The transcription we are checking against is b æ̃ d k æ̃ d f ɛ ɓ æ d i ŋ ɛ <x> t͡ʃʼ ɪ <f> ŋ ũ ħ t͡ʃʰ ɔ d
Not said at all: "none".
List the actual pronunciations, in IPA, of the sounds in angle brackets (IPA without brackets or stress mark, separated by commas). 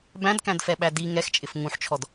x, f